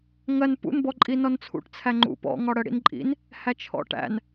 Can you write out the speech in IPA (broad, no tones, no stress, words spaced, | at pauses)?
ŋɜn pṵnbɔǃʼi nɔnt͡sʰṵʈ t͡sʰæŋ͡ǃṵ pɔ̰ ŋɒɽɜɽḭn ǃʼḭn | hæt͡ʃʰɔ̰ʈæ̰n